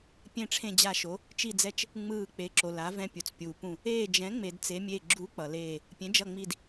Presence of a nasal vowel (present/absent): present